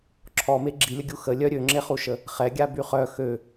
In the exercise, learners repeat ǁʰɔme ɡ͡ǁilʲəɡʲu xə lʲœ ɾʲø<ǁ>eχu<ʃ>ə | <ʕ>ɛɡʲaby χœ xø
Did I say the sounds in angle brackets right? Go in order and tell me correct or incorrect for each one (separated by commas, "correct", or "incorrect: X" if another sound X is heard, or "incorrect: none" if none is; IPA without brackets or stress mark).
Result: incorrect: ŋ͡ǁ, correct, incorrect: χ